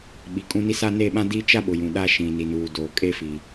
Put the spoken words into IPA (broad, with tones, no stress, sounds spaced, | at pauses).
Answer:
ɓ i˨ kʼ ũ˦ n i˦ s a˦ n e˦˨ ɓ ã˦ d iː˦ t͡ʃ a˦ ɓ ʊ˨ j ũ˨ ɗ a˦ ʃ ĩ˨ n i˨ n uː˨ d oː˨ kʼ e˦ f i˨